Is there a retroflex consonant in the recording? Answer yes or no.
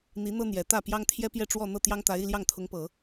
yes